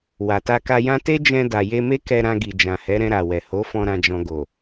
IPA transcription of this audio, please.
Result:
w a˨ t a˧ k a˧ j ã˦ t e˦ d͡ʒ ɛ̃˧ d a˨ j e˧ m e˦ k ɛ˧ ɾ ã˧ ɡ i˨ d͡ʒ ã˨ h ɛ˨˦ ɾ ɛ̃˧ ɾ a˨ w ɛ˨ h o˨˦ f ɔ̃˧ ɾ ã˨ d͡ʒ ɔ̃˨ ɡ o˨

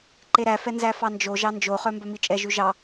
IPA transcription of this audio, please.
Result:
ǃ e ɾ æ f ɛ n z æ f ɑ n d͡ʒ o ʒ ɑ n d͡ʒ o χ œ m b œ m i t͡ʃʼ ɛ ʒ ʉ ʒ ɑ

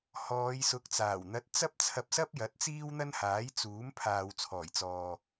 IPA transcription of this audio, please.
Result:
h ɔː˨˧ j s ʊ˨˥ k̚ t͡s aː˨˩ w n̪ ɐ˧ t̚ t͡s ɐ˥ p̚ t͡sʰ ɐ˧ p̚ s ɐ˥ p̚ j ɐ˨˥ t̚ t͡s iː˥ w n̪ ɐ˥ n h aː˨˥ j t͡s uː˨˥ m pʰ aː˨ w t͡sʰ ɔː˨˩ j t͡s ɔː˨

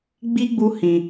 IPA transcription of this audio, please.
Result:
ɡ͡b i˦ ɡ͡b u˦ h ĩ˧

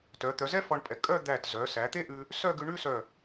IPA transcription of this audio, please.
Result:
t œ˩˧ t̪ œ˩˧ z ɛ˥ f ɔ˧ ɳ pʼ ɛ˩˧ kʼ œ˥˧ d̪ æ˧˩ t z œ˩˧ s æ˩˧ t̪ e˥ ʔ ʉ˧ | s œ˥˧ ɡ ʉ˧ ɳ ʉ˥˧ s œ˧˩

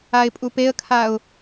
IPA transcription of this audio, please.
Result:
a ɪ̯ pʼ u p e ə̯ kʰ a ʊ̯

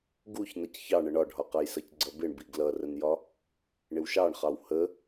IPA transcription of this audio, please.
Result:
ɡ u ç n ʌ c ç ɑ ɳ ə ɳ ɒ ɖʱ ɒ q ʌ j s ʌ c ɡ͡ǀ ʌ b ɪ ɳ b i ɡ l ʌ r ə n j ɒ | ɳ ɪ w ʃ ɑ ɳ χ ɑ w h ə

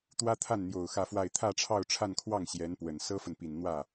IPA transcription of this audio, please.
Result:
t̪ w ä˥ t̪ʰ a˥˩ n n̪ j o˨˩ ʊ̯ x ä˥˧ f w a˥˧ ɪ̯ t̪ʰ ä˥˧ ʈ͡ʂʰ ɑ˥˧ ʊ̯ ʈ͡ʂʰ a˥˧ n kʰ w ɑ˥˩ ŋ ɕ j ɛ˧˥ n p w ə˨˩ n s ɤ˥ f ə˨ n p i˨˩ n n̪ w ä˥˩

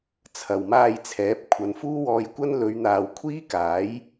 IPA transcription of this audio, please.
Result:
t͡sʰ ɐ˨ w m aː˧ j t͡sʰ ɛː˨˥ p̚ kʷʰ ɐ˨ n f uː˥ w ɔː˧ j kʷ ɐ˥ n l ɵ˨˧ ɥ n̪ aː˨ w kʷʰ iː˥ k aː˨˥ j

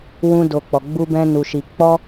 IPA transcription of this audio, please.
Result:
w ũ˧ d o˨ k͡p ɔ˨ ɡ͡b u˧ b ɛ̃˧ n u˨ ʃ i˨ k͡p ɔ˧

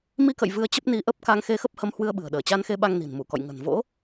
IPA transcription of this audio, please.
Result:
m i˧ k ə̰˧˨ j v ɨ˧ ə̯ t͡ɕ ə˦˥ p̚ n i˧ ʔ ə˦˥ p̚ k a˧ ŋ x e˧ x ə˦˥ p̚ h ə˧ m h w ɨ˧ ə̯ ɓ ɨ̤˨˩ ə̯ ɗ əː˧˩ t͡ɕ a˧ n x e˧ ɓ a˧ ŋ n i̤˨˩ n m u˧˩ k ɔ̰˧˨ j ŋ ə̤˨˩ n v o̰˧˥

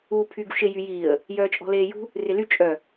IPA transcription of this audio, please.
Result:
uː pʰ yː ɡ ṳ ʃ ɪ j y j iː ə̯ | j œː t͡ʃʼ ɔ̤ l eː j ṳ | r ɪ l y t͡ʃʼ œ

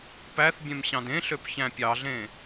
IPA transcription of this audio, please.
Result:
p æ θ bʲ ẽ m ɕ ɑ̃ d ẽ ɬ ø p ç æ̃ pʲ ɑ ɮ ẽ

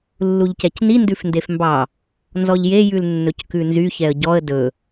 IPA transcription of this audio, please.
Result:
lː u ʎ c ɛ c n i n d ʉ f n d e f m b ɑ | n z ɔ ʎ j e j ʉ l nː ɵ c k ʉ n z y ç ɛ ə̯ ɟ ɔ ə̯ d ɵ

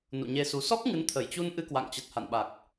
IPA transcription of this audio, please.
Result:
n ṵ˧˨ ɲ e˧ s u˨˦ s ɔ˦˥ k̚ ŋ ɨ˨˦ n t̪ʰ ə˧˩ j t͡ɕ u˧ n ʔ ɨ˧ k w a̰˧˨ ŋ t͡ɕ ə˨˩ t̚ h a̰˧˨ n ɓ a˨˩ k̚

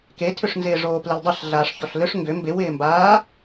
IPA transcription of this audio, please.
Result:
k e tʰ ʏ ʂ n z ɪː ʐ oː p l ɪ l dˤ ə ɬ ɮ aː ʂ ç ɔ ɬ l ʏ ʂ ŋ ɡ ʏ m b ɪ w ɪː m b aː

